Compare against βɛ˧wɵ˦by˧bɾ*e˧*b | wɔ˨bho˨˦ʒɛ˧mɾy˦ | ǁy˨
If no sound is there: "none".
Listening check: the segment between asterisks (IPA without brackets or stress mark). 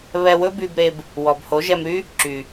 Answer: e˧